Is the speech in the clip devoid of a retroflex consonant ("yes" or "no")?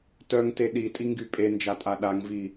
yes